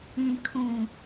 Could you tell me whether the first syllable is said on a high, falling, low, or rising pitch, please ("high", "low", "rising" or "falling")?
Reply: low